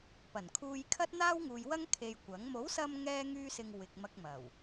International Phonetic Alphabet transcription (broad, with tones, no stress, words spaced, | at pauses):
pɐ˨˩nkʰuː˧jkʰɐ˥t̚ n̪aː˥wŋuː˨jwɐ˥ŋ kʰe˧jkʷɐ˨˥ŋ mo˨˥wsɐ˧m ŋɛː˥ŋyː˥sɪ˧ŋ wɪ˨k̚ mɐ˧k̚mɐ˨˩w